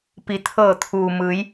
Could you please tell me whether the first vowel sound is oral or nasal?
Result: oral